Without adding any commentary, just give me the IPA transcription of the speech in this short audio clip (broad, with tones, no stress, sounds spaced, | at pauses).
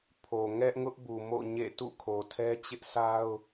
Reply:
pʰ o˨ ŋ ɛ˦ ʔ ŋ ʊ˦ ʔ b u˨ m o̰˦˨ ɲ ḛ˦˨ t ṵ˦˨ kʰ o˨ tʰ ɛ˦ t͡ɕ ɪ˦ ʔ s a˦ ʊ̯